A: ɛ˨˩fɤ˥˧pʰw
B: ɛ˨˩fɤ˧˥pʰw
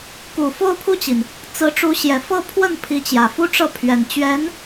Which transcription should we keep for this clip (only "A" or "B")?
A